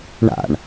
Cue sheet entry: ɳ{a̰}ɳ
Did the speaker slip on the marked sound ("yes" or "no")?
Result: no